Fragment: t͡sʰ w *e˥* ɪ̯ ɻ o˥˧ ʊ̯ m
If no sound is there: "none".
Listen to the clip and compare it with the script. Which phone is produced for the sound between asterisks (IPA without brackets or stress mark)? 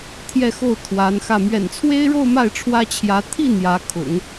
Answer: e˥